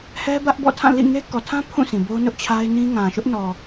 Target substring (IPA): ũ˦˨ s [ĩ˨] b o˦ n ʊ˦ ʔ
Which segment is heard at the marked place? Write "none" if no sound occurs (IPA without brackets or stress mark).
ĩ˨